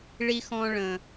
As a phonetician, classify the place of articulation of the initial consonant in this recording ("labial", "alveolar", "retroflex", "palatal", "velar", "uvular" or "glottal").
retroflex